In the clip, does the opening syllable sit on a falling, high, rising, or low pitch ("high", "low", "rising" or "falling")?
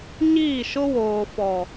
falling